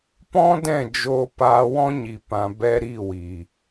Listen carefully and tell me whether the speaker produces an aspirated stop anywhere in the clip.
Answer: no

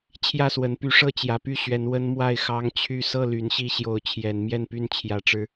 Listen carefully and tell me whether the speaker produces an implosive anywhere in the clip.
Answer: no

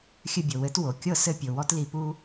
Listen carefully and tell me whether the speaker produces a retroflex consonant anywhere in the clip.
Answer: no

